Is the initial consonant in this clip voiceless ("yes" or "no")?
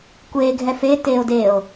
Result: yes